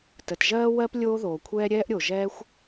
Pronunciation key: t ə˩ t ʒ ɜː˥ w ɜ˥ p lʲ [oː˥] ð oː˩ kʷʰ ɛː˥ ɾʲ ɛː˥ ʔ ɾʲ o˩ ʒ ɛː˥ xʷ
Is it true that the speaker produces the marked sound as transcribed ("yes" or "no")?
yes